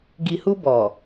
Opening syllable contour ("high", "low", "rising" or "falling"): low